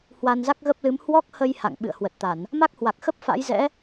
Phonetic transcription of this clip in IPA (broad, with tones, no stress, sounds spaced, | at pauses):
h w a˧ n z a˦˥ k̚ ɣ ə˦˥ p̚ l ɨ˨˦ m h w ɔ˦˥ k̚ h ə˧ j h a̰˧˨ ŋ ɓ ɨ̰˧˨ ə̯ h w ə˨˩ t̚ t̪ a˧˩˨ n | m a˦˥ k̚ h w a˨˩ k̚ x ə˦˥ p̚ f a̰˧˥ j z ɛ̰˧˥